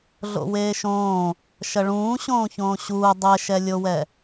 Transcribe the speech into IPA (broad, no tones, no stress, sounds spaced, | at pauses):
ɮ o̰ w eː ʃ õː | ʃ ɐ ɭ ũː ɕ õː ç õː ɕ uː dˤ ɛ ʃ ɛ lʲ o w ɛ